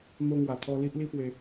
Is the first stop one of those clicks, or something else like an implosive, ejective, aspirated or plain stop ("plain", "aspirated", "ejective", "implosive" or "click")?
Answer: aspirated